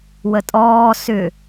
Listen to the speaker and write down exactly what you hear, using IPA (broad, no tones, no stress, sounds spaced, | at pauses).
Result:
w ə tʼ ɔː s ʏ